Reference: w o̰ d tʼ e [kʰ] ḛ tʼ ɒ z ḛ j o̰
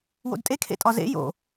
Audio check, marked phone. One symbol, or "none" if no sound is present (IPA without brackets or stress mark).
kʰ